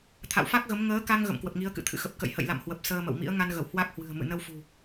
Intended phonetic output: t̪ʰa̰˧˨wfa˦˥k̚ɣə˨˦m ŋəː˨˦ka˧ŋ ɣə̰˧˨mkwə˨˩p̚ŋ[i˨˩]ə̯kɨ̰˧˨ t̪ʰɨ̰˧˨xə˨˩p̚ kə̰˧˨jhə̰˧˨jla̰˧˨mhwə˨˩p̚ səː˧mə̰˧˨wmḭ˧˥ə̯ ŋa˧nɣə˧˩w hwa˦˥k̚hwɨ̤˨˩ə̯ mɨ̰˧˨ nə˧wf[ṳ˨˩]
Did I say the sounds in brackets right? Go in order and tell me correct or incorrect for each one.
incorrect: i˨˦, correct

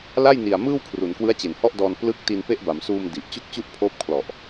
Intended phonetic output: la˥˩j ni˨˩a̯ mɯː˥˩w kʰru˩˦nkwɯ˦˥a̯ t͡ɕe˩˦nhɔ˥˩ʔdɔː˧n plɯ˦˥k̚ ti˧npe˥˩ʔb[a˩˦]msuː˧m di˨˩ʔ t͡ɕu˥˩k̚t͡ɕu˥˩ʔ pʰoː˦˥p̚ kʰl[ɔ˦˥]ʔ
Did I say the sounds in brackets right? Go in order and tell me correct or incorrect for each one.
correct, incorrect: ɔ˨˩

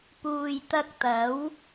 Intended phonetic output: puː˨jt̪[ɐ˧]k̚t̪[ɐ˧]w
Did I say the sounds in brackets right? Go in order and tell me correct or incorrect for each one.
correct, incorrect: ɐ˨˥

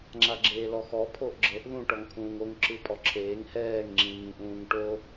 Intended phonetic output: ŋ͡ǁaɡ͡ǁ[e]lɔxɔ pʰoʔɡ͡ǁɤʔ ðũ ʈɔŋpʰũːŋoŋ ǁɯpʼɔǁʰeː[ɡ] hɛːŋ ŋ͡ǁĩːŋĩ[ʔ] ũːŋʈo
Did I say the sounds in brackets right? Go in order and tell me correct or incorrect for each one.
incorrect: eː, incorrect: ŋ, correct

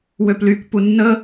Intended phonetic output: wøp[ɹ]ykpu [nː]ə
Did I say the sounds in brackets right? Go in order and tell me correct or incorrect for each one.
incorrect: l, correct

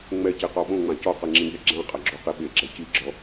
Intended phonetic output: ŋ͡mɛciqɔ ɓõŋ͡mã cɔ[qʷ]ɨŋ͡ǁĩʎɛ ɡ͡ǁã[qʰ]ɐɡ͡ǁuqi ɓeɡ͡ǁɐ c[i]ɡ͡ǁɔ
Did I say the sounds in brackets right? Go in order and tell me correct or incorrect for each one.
incorrect: q, incorrect: qʼ, correct

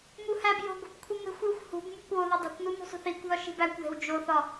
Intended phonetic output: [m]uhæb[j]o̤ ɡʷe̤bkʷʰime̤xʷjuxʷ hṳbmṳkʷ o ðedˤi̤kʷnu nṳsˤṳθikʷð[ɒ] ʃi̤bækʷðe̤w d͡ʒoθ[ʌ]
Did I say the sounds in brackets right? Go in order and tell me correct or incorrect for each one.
correct, correct, correct, incorrect: ɒ

